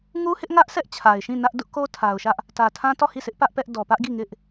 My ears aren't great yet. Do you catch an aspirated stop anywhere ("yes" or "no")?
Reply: yes